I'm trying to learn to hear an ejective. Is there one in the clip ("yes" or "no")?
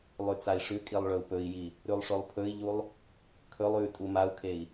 yes